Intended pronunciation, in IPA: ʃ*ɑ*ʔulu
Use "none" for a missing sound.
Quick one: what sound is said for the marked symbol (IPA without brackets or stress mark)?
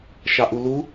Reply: ɑ